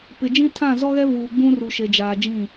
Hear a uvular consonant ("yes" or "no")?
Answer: no